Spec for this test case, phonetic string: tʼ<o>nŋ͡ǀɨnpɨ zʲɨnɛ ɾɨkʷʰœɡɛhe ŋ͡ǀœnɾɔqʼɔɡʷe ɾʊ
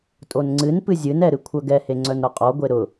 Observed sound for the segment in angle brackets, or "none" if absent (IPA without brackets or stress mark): o